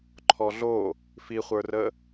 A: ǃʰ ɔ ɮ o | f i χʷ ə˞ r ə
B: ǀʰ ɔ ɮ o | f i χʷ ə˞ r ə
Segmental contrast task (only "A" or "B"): A